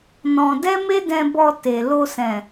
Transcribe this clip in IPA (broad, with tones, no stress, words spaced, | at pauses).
nɔ̃˧ dɛ˦me˦dɛ̃˧bɔ˧ te˨ lo˧sɛ̃˨